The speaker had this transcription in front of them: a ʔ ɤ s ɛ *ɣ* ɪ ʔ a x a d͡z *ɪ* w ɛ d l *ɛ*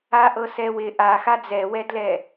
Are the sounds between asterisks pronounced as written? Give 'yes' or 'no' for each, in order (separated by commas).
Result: no, no, yes